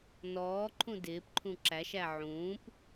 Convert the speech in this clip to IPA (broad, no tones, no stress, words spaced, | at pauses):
nɔːǃʰũ dɪːpǃʰũ ǁæʃæ ʕũːp